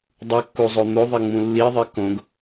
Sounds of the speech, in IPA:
dˤukːuzˤo n̪oðˤeŋ͡mũ lːiðˤi kõɡ

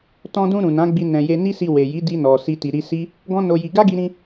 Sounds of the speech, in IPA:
tɔ̃˧dũ˧ ɾũ˨nã˨˦ɡ͡bi˧ nɛ̃˨ je˧ ni˦si˧we˨ji˨˦ di˧nɔ˨ si˧ti˨ɾi˧si˦ | ɡɔ̃˦no˧ji˧ ɡa˦ɡi˧ɾĩ˧

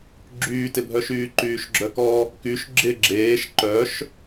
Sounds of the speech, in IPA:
ɡ͡ǁyːtɪbʱœʃyː ǃyːʃɡ͡ǁœkɔ | kyʃ ɡ͡ǁɪ ɡ͡ǁeːʃ ǃœʃ

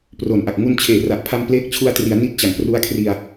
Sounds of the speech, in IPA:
pro˨˩n ʔa˨˩k̚ŋu˧n t͡ɕʰeː˨˩ra˨˩ʔpʰa˧m pleː˦˥k̚t͡ɕʰu˧a̯tri˩˦a̯ ni˦˥t̚t͡ɕa˩˦ŋpru˦˥a̯kʰri˧a̯

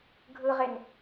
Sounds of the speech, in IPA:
ɡʱɯʁen

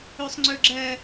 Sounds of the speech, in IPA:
ɵsˤŋ͡ǀɵɡ͡ǁɜ

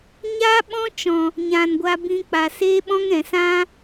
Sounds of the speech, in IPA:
ɲa˦ ɓɔ̃˦t͡ʃɔ̃˨ | ɲã˨nɡʷa˧bĩ˧ k͡pa˨seː˦ɓɔ̃˦ŋɾɛ̃˨ sã˦

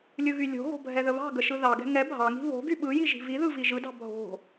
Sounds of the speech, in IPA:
lʲɯɣylʲo̤ɣo̤ bʱɛðəβɑ̤ɡə ʃɯðɑɡɛ̤ ŋɛ bʱɑŋi̤ βo̤ ɡyɓɯji ʒi̤viðɯ viʒɯdɑ̤ bʱo̤

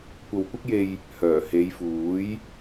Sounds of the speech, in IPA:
kʷɐ˨wkʷɪ˥k̚je˧j | hœː˨˩he˨˧jfuː˨˥j

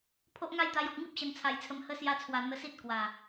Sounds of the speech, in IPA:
pʰo˦ʔŋa˥˧jt̪a˧jɔ˨k̚ ŋi˦p̚ɕə˨˩nt͡sʰa˨˩jt͡sʰə˨˩m hə˧ sja˧t͡sʰwa˨˩ n̪ə˧si˦t̚ kwa˨˩

